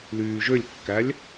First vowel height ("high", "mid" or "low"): high